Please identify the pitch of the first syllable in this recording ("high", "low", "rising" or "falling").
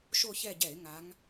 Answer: falling